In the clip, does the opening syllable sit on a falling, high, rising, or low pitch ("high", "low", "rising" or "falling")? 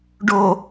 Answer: low